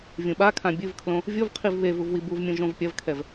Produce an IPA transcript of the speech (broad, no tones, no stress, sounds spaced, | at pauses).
vʲ ũ ɓ a kʰ ã bʲ ɨ v kʰ l õ | vʲ o v qʰ i v β e v u v w i b u v mʲ ũ ʒ õ v pʲ ɐ v kʰ ɛ v